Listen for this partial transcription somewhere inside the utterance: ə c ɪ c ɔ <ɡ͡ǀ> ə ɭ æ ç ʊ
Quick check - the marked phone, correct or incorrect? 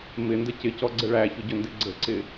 correct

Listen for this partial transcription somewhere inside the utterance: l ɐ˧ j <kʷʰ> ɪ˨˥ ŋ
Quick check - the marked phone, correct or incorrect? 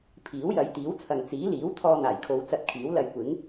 incorrect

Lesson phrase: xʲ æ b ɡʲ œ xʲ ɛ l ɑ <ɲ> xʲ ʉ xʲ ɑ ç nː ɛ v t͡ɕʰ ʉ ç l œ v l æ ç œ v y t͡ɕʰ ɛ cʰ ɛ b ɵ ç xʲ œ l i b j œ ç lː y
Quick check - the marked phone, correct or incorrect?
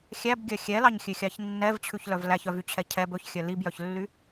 correct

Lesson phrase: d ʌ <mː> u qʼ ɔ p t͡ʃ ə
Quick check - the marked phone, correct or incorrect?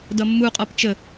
correct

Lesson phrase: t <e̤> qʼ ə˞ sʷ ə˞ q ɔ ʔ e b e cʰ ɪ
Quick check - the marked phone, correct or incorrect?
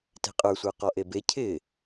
correct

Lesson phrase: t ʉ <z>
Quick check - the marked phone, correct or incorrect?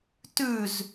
correct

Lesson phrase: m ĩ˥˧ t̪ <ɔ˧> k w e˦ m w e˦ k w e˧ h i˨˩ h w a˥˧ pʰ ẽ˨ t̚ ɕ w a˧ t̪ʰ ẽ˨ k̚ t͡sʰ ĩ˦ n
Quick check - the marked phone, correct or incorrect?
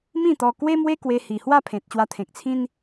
correct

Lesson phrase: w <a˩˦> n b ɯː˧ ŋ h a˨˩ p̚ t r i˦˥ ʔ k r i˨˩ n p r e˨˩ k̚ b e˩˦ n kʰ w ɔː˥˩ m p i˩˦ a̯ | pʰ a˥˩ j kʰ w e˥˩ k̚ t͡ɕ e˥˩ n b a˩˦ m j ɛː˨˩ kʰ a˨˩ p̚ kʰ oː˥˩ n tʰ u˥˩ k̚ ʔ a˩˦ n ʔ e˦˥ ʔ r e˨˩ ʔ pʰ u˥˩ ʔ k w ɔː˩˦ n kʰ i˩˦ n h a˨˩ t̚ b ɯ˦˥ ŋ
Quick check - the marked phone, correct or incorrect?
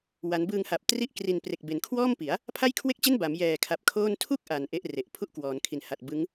correct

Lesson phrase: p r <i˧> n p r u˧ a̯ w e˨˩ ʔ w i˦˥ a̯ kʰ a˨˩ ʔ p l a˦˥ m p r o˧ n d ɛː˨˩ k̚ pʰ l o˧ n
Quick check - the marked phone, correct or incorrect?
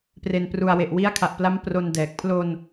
incorrect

